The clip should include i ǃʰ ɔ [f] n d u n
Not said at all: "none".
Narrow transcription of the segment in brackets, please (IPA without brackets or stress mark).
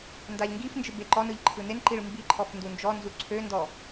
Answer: f